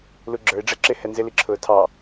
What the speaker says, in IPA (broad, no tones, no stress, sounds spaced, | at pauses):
l u ɡ͡ǁ ə˞ ɪ̯ ɖ͡ʐ ɛ ǁ ɪ h ɛ n z ɪ l i ǁʰ ʊː tʰ ɑ